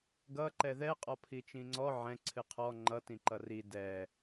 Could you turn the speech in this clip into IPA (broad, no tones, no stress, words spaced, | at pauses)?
ɡʌ ǃɛðɛ qʼɔpʰit͡ʃĩŋ͡ǀɔ ʕɛ̃ ǀʰɨqʰɔ ŋ͡ǃʌ tĩǃʌri dɛ